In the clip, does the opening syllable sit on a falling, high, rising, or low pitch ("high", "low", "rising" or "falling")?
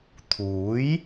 rising